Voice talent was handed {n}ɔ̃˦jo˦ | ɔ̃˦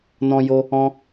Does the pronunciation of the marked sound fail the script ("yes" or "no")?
no